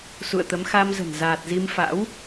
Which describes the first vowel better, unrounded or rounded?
rounded